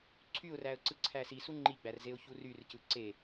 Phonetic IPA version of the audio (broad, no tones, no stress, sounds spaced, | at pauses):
ǀʰ y ʊ̯ r æ ə̯ ǀ ɯ ǀʰ æ s i s u ŋ͡ǃ i ɡ͡b æ r z e ʊ̯ ç u r y r c ɯ ǀ e